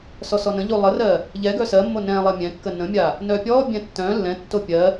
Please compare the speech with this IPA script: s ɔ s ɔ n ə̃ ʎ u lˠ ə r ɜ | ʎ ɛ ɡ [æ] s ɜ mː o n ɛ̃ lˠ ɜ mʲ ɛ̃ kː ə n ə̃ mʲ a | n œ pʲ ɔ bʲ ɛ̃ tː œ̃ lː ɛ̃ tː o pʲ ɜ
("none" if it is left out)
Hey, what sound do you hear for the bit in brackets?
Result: œ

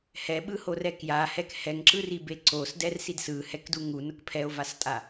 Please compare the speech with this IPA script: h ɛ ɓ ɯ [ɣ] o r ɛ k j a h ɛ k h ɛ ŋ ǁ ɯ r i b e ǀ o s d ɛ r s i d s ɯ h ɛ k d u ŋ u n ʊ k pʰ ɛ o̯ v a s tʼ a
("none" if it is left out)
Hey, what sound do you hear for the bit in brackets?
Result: h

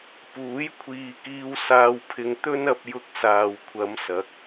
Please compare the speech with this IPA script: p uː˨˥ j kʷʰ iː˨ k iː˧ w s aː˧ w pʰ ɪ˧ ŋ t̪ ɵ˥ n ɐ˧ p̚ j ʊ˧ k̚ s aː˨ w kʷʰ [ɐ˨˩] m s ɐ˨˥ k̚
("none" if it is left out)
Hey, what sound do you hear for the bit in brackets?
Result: ɐ˨˧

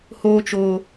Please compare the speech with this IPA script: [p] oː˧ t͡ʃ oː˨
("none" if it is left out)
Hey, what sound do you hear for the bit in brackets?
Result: h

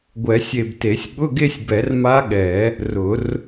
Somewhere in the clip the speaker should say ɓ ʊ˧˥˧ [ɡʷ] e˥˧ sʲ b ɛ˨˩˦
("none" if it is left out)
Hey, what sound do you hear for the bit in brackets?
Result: ɡ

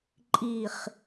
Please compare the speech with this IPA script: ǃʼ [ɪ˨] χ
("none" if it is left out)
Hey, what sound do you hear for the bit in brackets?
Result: i˨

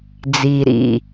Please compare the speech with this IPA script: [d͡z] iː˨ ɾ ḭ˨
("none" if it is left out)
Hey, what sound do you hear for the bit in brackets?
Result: d͡z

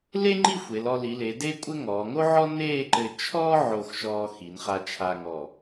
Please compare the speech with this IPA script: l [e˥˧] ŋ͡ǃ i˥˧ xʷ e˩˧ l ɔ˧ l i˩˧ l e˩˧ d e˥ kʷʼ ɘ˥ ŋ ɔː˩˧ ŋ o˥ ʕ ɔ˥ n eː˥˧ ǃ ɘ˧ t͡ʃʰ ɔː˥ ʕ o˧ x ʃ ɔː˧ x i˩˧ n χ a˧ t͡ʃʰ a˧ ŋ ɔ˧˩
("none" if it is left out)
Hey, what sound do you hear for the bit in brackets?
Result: e˥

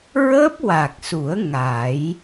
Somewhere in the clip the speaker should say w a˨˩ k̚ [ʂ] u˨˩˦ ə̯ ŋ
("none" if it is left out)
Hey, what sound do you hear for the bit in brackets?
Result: s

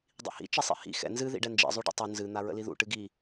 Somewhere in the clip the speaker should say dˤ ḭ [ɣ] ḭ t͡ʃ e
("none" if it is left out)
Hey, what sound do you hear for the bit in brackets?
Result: h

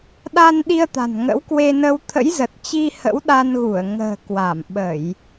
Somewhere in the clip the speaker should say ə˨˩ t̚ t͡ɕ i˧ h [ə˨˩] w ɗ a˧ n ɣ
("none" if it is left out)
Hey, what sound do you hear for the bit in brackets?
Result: ə̰˧˥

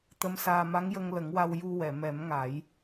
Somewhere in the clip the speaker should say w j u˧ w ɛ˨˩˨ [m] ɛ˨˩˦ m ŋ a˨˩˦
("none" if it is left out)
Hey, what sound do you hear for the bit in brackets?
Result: m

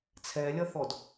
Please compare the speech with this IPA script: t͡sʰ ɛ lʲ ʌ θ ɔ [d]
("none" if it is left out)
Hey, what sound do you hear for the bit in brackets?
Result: d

